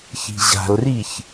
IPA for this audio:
ç i̤ ʑ a̤ l r i ç

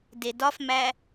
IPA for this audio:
d e d ɒ f m æ

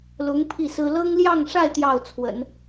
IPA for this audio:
l ʊ˧˥ ŋ pʰ i˥˩ s ɹ̩˥ l ɤ˥ ŋ l j ɑ˥˧ ŋ ʂ a˥˧ ɪ̯ t̪ j ɑ˥˩ ʊ̯ t͡sʰ w ə̰˨˩˦ n

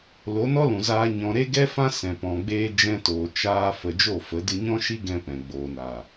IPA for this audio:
l o˨˦ n ɔ˦ l ũ˨ z aː˧ ɲ ɔ̃˨ ɾ e˦ ɡ ɛ˦ f ã˦ s ɛ̃˨ p ɔ̃˨ ɡ͡b eː˧ d͡ʒ ɛ̃˧ t oː˨ t͡ʃ aː˧ f ə˨ d͡ʒ o˦˨ f ə˨˦ d ɨ˧ ɲ ɔ̃˦ ʃ i˦ ɡ ɛ̃˧ p ɛ̃˨ ɡ͡b oː˨ n a˨

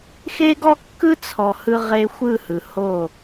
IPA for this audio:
x e˦ ɡ ɔ˦ kː ɯ˦ t͡sʰ ɔ˨ h ɯ˦ ʁ e˦ xʷ ɯ˦˨ h ɯ˨ h o˦˨

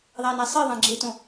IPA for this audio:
ðˤ æ n æ sˤ i ðˤ æ̃ ɡ͡ǁ e t õ

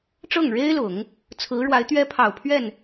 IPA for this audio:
ʈ͡ʂ ɤ˥˩ ŋ ɻ e˥ ɪ̯ l ʊ˨˩˦ ŋ | t͡sʰ ɹ̩˧˥ ɻ w a˧˥ ɪ̯ t̪ ɥ ɛ˥ pʰ ɑ˨˩ ʊ̯ pʰ ɥ ɛ˥˩ n

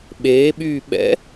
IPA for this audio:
ɓ eː ɓ yː ɓ ɛ̰

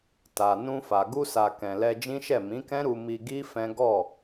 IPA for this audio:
t a˨ n ũ˧ f a˨ ɡ u˧ s a˨ k ɛ̃˨ l ɛ˧ d͡ʒ ĩ˦ ʃ ɛ˦˨ m ĩ˨˦ k ɛ̃˦ ɾ u˧ m i˧ ɡ i˦ f ɛ̃˦ ɡ ɔ˦˨

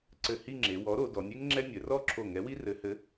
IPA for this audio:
ǀ ɘ˧˩ h i˥˧ ŋ͡ǁ e˩˧ w ɔ˨˥ ɾ o˩˧ d ɔ˩˧ nʲ e˥ ŋ ŋ͡ǁ ɛ˥ nʲ ɘ˩˧ r ɔ˥˧ ǁʰ o˧˩ ŋ ɛ˨˥ w i˥ r ɘ˨˥ h ɘ˨˥

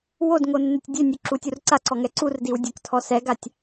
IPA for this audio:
w o d ŋ o nː ø tʲ dʲ ø nʲ u ǁ u tʲ u r ǀ a ǀ ɔ ŋ ɛ ǀ u r d i w dʲ ø k tʰ ɔ s ɛ ɡ a tʲ

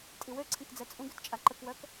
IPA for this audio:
tʼ i w ø ǀʰ ẽ k d͡z ɛ t͡sʼ ũ ɡ ø t t͡ʃʼ a ǃ ə k w œ k

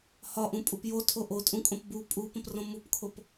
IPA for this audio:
h ɒ ʔ ũ pʼ u p j o tʰ o ʔ o tʼ ũ kʼ õ p b u pʼ u p ə̃ p r õ m u p kʰ o p

